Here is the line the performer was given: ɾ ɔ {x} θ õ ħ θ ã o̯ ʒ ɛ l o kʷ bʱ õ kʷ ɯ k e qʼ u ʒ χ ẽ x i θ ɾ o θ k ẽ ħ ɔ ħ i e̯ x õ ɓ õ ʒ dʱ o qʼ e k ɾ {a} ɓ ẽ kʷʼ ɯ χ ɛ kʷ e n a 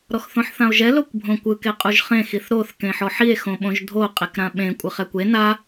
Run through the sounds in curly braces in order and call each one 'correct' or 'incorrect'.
correct, incorrect

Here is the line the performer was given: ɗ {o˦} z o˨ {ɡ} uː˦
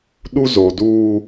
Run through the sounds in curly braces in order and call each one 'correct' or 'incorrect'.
incorrect, incorrect

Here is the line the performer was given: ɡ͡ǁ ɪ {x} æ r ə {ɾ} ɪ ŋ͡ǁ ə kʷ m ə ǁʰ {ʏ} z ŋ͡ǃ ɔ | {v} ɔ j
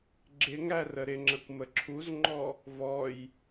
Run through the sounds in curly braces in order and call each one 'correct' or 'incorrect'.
incorrect, correct, incorrect, correct

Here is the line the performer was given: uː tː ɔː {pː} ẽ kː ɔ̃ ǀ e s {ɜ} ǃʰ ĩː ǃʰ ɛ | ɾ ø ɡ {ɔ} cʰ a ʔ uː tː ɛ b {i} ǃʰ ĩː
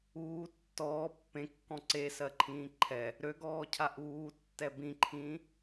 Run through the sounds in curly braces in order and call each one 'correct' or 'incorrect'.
correct, correct, incorrect, incorrect

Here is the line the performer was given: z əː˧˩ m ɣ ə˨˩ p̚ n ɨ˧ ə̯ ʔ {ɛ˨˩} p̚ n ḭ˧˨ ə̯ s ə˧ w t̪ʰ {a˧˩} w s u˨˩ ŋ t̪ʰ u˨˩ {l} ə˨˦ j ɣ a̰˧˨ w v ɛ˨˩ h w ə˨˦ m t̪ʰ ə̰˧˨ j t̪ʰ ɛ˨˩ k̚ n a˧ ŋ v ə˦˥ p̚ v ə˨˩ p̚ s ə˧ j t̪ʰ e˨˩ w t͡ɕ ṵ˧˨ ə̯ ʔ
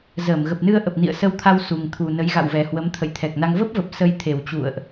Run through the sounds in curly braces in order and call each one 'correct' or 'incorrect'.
incorrect, incorrect, incorrect

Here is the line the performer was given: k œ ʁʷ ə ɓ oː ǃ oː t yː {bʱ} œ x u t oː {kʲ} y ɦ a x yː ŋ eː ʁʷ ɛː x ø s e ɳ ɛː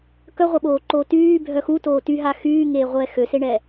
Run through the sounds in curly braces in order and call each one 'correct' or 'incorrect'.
correct, incorrect

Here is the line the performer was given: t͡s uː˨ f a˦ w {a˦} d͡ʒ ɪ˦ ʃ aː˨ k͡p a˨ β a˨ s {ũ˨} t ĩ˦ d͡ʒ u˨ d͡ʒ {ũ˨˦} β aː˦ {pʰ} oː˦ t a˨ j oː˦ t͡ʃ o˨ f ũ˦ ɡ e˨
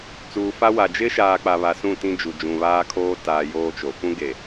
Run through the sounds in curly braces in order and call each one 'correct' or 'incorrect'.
incorrect, incorrect, incorrect, incorrect

